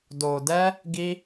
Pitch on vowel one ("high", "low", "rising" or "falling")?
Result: low